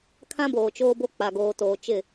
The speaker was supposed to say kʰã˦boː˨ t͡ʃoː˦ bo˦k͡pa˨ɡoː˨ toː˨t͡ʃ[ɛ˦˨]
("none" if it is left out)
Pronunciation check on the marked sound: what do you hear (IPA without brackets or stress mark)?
ɪ˦˨